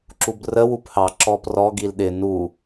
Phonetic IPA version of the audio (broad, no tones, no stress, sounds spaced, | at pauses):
ǁ u b r ə w u p h ɑ ǁ ɔ p r ɔ ɡ i l ɗ ɪ n u